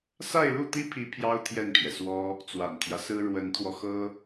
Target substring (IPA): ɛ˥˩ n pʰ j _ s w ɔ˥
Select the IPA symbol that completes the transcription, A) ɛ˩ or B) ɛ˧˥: A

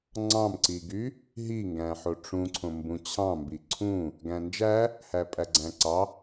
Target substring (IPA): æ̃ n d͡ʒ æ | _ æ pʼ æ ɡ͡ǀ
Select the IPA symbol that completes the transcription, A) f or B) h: B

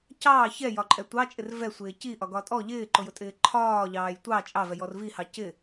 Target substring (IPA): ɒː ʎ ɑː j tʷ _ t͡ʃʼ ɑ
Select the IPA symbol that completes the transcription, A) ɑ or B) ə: A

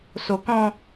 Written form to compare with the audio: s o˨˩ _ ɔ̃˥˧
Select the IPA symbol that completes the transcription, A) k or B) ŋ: A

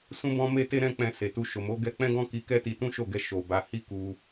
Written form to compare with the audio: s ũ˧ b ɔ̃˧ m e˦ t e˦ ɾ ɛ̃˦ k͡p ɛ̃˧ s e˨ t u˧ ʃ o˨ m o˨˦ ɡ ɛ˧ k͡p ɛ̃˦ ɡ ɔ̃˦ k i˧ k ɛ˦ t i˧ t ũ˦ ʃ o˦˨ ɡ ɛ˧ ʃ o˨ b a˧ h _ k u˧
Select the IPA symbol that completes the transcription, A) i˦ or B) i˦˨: A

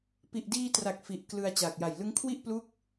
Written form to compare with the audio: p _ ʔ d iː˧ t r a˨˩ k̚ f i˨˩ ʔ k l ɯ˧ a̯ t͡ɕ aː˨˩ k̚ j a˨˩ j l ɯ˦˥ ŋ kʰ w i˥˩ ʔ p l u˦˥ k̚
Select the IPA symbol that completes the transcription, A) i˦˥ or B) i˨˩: B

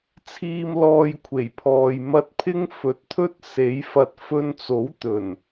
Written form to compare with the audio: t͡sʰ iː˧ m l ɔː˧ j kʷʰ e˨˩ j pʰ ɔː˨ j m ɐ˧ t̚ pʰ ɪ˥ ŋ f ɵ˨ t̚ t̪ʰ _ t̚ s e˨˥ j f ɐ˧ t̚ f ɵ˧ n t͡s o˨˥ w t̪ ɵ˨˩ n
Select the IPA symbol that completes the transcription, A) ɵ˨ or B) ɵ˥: B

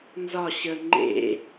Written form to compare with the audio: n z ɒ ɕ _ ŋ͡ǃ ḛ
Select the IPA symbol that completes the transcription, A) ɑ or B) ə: B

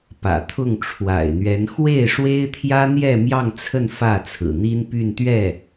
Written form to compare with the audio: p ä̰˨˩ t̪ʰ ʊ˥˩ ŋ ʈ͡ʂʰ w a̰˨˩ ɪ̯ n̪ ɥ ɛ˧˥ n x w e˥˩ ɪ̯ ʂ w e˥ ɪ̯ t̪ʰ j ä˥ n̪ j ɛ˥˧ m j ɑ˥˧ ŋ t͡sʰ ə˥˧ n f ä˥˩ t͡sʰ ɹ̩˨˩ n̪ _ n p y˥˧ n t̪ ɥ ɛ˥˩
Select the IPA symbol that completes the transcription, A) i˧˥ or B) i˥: B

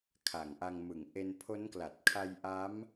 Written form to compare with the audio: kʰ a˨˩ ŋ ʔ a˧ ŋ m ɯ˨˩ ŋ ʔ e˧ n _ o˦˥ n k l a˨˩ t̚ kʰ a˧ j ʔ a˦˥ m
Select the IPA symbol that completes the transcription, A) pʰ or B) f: A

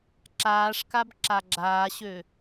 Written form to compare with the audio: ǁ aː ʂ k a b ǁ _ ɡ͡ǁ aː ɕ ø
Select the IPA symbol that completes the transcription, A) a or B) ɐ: A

